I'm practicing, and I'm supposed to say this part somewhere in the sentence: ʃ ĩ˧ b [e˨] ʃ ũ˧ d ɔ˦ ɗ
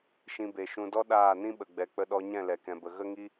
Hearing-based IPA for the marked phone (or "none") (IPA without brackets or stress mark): e˨